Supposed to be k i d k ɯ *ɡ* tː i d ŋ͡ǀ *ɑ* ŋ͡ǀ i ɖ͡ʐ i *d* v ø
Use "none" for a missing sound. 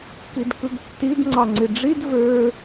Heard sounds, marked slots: ɡ, ɑ, d

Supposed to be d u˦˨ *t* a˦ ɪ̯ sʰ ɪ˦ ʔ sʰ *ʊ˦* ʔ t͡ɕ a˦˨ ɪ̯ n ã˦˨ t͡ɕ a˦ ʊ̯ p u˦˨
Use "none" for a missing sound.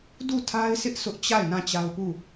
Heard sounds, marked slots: tʰ, ʊ˦

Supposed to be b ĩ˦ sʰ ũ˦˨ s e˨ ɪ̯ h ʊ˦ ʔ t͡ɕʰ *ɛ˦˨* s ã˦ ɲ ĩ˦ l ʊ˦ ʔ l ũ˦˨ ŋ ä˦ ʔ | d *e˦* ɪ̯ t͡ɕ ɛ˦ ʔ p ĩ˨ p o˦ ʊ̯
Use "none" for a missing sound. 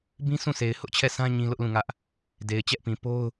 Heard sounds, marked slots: ɛ˦˨, e˨

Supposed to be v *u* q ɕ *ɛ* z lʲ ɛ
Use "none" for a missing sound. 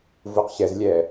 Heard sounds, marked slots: u, ɛ

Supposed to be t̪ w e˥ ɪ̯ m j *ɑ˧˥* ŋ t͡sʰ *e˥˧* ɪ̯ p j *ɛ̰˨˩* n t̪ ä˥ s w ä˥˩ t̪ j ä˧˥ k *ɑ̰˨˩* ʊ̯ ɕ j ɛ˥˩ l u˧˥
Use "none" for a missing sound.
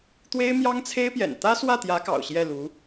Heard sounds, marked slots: ɑ˥, e˥, ɛ̰˨˩, ɑ̰˨˩

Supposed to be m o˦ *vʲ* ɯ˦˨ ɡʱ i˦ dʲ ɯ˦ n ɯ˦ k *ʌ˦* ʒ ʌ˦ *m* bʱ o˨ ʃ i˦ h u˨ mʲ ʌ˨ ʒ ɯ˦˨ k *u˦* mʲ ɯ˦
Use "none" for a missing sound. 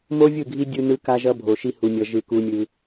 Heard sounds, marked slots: vʲ, a˦, none, u˦

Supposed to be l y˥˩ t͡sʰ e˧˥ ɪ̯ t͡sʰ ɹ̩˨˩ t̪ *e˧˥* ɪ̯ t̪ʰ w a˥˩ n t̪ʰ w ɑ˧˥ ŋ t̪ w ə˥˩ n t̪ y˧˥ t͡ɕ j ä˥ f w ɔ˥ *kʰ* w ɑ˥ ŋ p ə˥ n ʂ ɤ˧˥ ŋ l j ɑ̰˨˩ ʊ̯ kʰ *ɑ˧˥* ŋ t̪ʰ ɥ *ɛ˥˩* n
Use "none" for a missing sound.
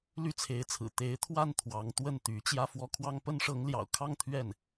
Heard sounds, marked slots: e˧˥, kʰ, ɑ˥˧, ɛ˥˩

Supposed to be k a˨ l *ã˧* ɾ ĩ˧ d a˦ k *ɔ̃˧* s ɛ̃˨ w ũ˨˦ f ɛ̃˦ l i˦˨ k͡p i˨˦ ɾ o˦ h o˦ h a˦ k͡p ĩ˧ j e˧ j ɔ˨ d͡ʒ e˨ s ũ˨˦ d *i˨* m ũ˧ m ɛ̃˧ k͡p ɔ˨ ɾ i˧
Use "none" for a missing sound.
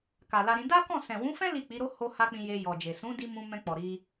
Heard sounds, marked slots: a˧, ɔ̃˦˨, i˧

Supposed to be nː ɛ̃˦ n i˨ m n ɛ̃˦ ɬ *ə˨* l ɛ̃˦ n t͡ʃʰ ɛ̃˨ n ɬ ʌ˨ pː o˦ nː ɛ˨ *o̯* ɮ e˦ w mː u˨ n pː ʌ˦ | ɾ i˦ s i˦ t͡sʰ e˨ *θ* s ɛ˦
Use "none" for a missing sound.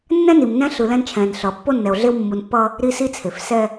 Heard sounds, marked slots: ɯ˨, o̯, f

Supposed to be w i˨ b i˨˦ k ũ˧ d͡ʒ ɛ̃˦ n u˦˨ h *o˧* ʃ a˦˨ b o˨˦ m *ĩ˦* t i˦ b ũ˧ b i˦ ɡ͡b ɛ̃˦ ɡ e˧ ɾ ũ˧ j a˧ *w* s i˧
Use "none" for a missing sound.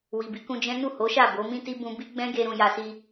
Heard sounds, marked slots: o˨˦, ĩ˦, none

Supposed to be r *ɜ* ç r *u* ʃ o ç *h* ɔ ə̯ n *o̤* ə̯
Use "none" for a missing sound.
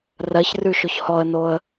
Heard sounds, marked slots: ɜ, ʉ, h, o

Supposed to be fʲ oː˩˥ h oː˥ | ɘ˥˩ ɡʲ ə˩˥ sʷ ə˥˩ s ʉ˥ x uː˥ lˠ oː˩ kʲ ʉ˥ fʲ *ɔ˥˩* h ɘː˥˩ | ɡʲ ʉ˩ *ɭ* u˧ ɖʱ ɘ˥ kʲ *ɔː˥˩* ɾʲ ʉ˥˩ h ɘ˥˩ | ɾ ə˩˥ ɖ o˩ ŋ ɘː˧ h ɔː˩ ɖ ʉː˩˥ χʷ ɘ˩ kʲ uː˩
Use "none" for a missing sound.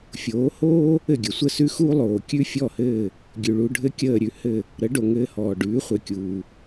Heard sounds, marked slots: ɔ˥˩, ɭ, əː˥˩

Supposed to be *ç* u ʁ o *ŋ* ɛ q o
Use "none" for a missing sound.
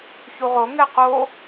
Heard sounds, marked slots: ç, ŋ

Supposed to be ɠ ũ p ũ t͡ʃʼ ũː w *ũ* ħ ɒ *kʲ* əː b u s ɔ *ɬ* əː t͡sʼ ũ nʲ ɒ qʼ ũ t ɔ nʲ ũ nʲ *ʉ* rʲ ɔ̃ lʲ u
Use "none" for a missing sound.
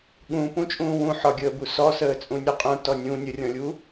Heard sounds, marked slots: ũ, ɡʲ, s, ə

